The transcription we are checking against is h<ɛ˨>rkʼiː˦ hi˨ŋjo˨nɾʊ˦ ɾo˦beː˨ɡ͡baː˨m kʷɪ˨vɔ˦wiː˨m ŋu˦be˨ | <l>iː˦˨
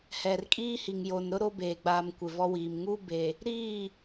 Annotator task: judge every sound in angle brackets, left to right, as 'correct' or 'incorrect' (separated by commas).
correct, incorrect